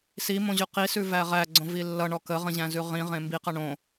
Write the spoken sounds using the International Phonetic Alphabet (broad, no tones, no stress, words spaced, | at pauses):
simõʑʉ qisʉvæ ʁæɡ͡ǀõvi lːʌɳɔ kəʁə̃ʑæ̃zʉ ʁĩʁẽ mbiqʌ ɳõ